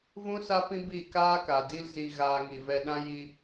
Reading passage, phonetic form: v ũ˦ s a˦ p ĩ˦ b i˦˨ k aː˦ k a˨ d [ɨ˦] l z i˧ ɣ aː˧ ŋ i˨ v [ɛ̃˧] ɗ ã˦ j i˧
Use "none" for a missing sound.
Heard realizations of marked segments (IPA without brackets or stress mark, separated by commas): i˦, ɛ˧